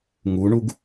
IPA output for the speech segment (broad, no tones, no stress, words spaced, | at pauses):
ŋuɳuɡ